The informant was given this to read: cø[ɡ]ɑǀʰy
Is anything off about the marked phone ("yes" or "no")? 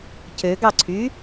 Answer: no